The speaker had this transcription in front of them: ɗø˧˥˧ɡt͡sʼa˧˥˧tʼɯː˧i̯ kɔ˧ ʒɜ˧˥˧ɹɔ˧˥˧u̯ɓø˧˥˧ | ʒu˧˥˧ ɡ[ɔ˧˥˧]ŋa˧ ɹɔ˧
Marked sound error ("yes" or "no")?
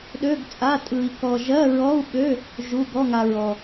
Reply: no